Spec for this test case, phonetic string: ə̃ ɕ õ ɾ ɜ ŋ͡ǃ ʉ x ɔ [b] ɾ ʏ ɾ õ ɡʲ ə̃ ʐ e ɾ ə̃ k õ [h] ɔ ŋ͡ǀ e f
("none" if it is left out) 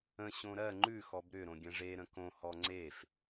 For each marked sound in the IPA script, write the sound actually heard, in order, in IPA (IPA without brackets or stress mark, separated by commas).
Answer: b, h